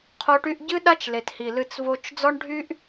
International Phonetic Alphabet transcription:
qʰ o˦ ʈ y˦ ʔ ɟ ɨ˦ ɗ a˦ t͡ʃ l e˨ t h i˨ l ɨ˦ t͡s v o˦ t͡ʃ d͡z ɔ˦ ɳ ɖʱ y˦ ʔ

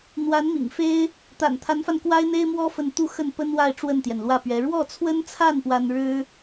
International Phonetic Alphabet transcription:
n̪ w a˧˥ n m ḭ˨˩ ŋ f e˥ ɪ̯ | t̪ a̰˨˩ n t̪ʰ a˧˥ n f a˧ n k w a˥ ɪ̯ n̪ e˥ ɪ̯ m w ɔ˥ f ə˥˧ n t̪ u˥˧ x ə˥˩ n p ə˥ n w a˥˧ ɪ̯ ʈ͡ʂ w ə˥˩ n t̪ j ɛ˩ n l w ä˥˩ p ɥ ɛ˧˥ ɻ w ɔ˥˩ t͡sʰ w ə˥ n t͡sʰ a˥˩ n p w a˥ n ɻ ɻ̩˥

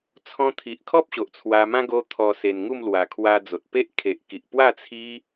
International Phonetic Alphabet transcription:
t͡sʰ ɔ̃˧ t̪ʰ i˨ ʔ kʰ ɔ˦ p̚ ɕ o˨ ʔ t͡sʰ w a˧ m ã˦ ɡ o˧ t̪ʰ ɔ˨˩ s e˨˩ n ŋ u˥˧ m l w a˨˩ kʰ w a˧ d͡z o˨ t̚ p e˦ ʔ kʰ e˨ ʔ k i˨ ʔ p w a˥˧ t͡sʰ i˦

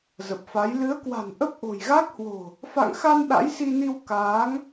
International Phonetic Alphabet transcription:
z ə˨˩ p̚ f a˨˦ j l ɨ˨˦ ə̯ k w a̤˨˩ n ʔ ə˦˥ p̚ ʔ o̤˨˩ j ɣ a˦˥ k̚ h w o̤˨˩ | f a̰˧˨ ŋ x a˧ n ɗ a̰˧˥ j s i˧ n i˧ w k aː˨˦ ŋ

